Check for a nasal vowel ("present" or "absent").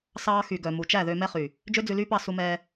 absent